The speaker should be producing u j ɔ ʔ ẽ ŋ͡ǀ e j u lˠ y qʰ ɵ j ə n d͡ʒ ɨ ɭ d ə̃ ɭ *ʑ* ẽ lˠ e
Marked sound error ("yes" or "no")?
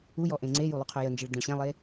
yes